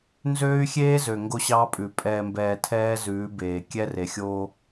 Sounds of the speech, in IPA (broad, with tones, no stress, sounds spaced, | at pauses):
n z øː˦ y̯ xʲ eː˦ z ø˨ ŋ ɡ o˦ ɕ ɑː˦ pʼ ʉ˨ pʼ ɛː˨ m b ɛː˨ tʰ ɛː˦ z ʉː˨˦ b eː˨ kʲ ɛ˦ r e˨ xʲ oː˦